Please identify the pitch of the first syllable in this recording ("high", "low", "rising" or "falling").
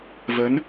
rising